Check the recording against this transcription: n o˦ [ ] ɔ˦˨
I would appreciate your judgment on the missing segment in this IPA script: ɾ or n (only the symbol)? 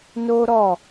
ɾ